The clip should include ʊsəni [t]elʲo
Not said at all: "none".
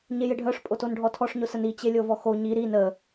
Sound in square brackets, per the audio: t͡ɕ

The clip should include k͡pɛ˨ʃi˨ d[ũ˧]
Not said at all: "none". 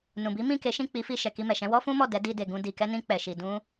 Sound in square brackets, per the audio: ũ˧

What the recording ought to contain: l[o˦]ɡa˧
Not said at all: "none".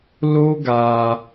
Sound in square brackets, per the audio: o˦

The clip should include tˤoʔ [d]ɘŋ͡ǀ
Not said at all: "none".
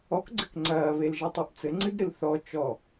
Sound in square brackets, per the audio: t͡s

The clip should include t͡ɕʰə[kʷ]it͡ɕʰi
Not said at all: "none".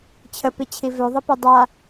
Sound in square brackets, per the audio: p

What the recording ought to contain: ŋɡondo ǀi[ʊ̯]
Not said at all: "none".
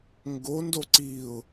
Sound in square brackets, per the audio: ʊ̯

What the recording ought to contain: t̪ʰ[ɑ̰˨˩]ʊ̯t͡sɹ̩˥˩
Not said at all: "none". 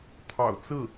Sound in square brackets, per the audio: ɑ̰˨˩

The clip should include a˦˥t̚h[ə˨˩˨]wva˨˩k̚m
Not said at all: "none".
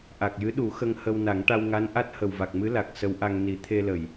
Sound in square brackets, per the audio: ə˨˩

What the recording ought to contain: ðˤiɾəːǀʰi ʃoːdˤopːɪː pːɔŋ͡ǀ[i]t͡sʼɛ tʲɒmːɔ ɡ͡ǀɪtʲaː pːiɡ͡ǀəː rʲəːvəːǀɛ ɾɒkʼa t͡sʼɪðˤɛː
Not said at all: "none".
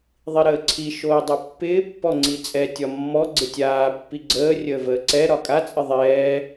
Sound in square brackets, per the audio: i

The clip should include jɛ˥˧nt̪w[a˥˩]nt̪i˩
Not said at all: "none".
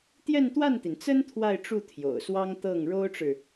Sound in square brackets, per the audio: a˥˩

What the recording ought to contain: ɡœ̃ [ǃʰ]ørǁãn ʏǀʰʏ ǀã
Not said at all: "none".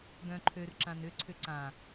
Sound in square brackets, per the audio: ǃʰ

